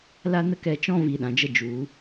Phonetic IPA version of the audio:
l a˦ n ə˦ k ɛ˧ t͡ʃ ɔ̃˦ v i˧ ɗ ã˨ d͡ʒ ə˦ d͡ʒ u˨˦

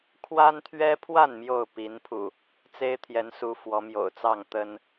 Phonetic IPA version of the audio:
kʰ w a˦ n t̪ʰ ɥ ɛ˦ pʰ w a˥˨ n m j o˥˨ ʊ̯ p i˨˦ n pʰ ṵ˨˩ | t͡s e˦ ɪ̯ t̪ʰ j ɛ˨˦ n s u˨˦ f w ɔ˨˦ m j o̰˨˩ ʊ̯ t͡s ɑ˥˨ ŋ t̪ ə˦ n

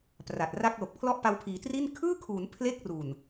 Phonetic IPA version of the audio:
p r a˨˩ t̚ r a˥˩ k̚ l o˨˩ k̚ pʰ l ɔ˥˩ ʔ p a˧ w pʰ iː˩˦ t r i˥˩ n kʰ ɯː˥˩ kʰ uː˩˦ n pʰ l e˥˩ k̚ r u˨˩ n

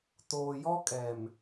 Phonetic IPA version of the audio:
t oː˨ j ɔ˦ kʼ ɛ˨ m

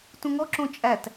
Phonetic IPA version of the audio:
t ũ ŋ ɔ ǁ õ t͡ʃʼ æ t

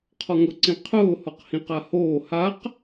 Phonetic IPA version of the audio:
qʰ ɔ ŋ ʊ ǀ ĩ qʰ ʊː h ɔ q h ĩ q a h oː h a q

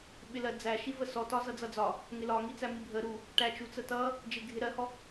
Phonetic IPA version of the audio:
ɓ ɪ l ɜ d͡z æ ʃ i v ə s ɔ t ɒ z ʌ d͡z ʌ d͡z ɒ | ŋ ɪ l ɒ ŋ i t͡s æ m i bʱ ə ɾ u | ʈ æ t͡ʃ u t͡s ə t ʌ | d͡ʒ ɪ ɡʱ ɪ ɾ ɜ h ɔ

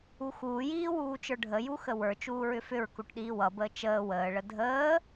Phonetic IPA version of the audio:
u x uː j iː w uː t͡ʃ ə˞ ɖʱ ə j u x ə w ə˞ t͡ʃ uː ɹ ʏ f ʏ ɹ k u ʈ ɗ iː w ʌ b əː t͡ʃ əː w əː ɭ ə dʱ əː

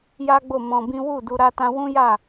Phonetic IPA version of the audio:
j a˦ ɡ͡b o˦˨ m ɔ̃˧ b ĩ˦ w u˦˨ d u˧ ɾ a˦ t ã˦ w ũ˦ j a˦˨

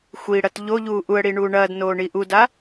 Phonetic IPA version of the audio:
xʷ i ɽ ɐ t ʎ o ʎ uː ʔ u ə̯ ɽ i ɳ uː ɳ ɐː d n oː ɳ i ʔ u d a

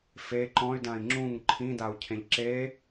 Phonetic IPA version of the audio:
f e ǃ ɔ̃ y̯ d ã i̯ ŋ͡ǁ ũ ŋ ǃʰ ĩ d a u̯ cʰ ẽ ʎ ǁ e

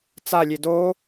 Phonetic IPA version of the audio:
t͡s a lʲ e d o

